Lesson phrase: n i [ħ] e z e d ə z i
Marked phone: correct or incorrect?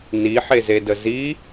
correct